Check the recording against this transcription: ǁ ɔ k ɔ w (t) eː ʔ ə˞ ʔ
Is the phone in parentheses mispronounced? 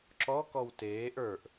no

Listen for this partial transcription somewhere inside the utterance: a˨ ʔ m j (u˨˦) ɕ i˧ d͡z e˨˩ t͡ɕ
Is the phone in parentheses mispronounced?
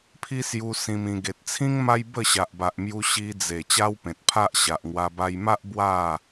yes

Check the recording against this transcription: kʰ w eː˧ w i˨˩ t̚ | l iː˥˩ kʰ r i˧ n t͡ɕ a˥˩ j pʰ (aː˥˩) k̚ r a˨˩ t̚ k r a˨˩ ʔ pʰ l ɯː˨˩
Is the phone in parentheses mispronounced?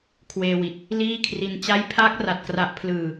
yes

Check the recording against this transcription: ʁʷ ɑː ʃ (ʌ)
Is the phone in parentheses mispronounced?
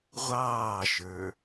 yes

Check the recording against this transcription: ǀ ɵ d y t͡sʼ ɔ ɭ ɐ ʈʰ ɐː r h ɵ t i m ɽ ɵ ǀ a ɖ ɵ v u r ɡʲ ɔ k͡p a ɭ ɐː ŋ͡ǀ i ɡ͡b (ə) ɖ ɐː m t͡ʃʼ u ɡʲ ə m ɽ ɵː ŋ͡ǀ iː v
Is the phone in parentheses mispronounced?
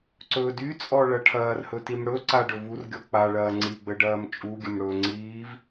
no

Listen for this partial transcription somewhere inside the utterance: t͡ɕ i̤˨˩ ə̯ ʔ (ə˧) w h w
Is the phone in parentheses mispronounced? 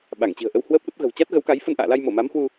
no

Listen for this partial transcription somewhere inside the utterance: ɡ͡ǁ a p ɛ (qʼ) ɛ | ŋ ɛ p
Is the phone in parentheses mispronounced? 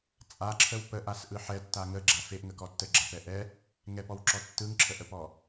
yes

